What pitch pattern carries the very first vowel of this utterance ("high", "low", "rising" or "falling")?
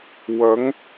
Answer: rising